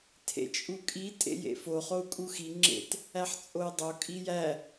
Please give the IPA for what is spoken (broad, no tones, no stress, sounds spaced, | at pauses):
tʰ ḛ t͡ʃʼ u kʼ i tʼ ḛ j ḛ f o χ o u̯ kʼ u x i ŋ͡ǁ ḛ t | æ ħ t͡sʼ o i̯ dˤ o kʼ i j æ